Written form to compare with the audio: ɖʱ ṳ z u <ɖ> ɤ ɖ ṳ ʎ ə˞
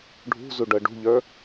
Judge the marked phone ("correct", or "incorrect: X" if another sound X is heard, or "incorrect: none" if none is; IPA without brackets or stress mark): correct